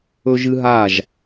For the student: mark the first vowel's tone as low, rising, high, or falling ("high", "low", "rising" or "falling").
high